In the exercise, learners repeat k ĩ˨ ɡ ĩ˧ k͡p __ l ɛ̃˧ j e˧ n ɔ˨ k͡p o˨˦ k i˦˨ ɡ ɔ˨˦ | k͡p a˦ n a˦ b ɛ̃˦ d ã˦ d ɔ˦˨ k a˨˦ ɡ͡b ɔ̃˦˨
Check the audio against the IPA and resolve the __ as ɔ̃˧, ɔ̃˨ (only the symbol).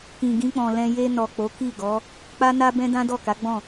ɔ̃˨